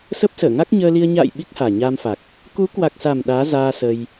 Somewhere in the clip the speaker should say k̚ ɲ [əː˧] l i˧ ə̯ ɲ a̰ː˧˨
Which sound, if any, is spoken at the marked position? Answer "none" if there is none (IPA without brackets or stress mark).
əː˧